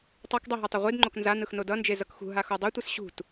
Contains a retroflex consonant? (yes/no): no